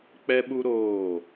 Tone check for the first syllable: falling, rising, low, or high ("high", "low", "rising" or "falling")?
high